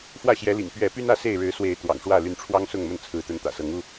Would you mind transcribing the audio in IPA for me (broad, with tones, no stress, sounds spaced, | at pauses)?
f w ä˥˨ ɕ j ɛ˨˦ l ḭ˨˩ ŋ p ɥ ɛ˨˦ p y˦ n ä˥˨ s e˥˨ ɪ̯ ɻ ɻ̩˨˦ s w e˨˦ ɪ̯ t̪ w ɑ̰˨˩ ŋ ʂ w ä˥˨ l y˨˦ n ʈ͡ʂʰ w ɑ˦ ŋ s ʊ˥˨ ŋ m ə˥˨ n t͡sʰ ɹ̩˨˦ t̪ ə˨˦ n t̪ ä̰˨˩ s ɤ˨˦ ŋ u˥˨